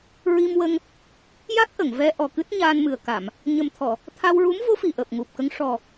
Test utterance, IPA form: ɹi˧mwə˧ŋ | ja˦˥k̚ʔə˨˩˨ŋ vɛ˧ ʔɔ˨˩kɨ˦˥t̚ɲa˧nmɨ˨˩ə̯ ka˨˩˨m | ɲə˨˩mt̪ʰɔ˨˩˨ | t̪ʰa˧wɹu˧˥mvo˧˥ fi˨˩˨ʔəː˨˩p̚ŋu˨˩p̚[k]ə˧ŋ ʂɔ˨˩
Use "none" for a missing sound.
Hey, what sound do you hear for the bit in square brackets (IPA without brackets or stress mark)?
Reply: k